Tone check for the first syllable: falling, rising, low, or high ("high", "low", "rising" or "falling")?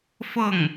falling